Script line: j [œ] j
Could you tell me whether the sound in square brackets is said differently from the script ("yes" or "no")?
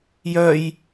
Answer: no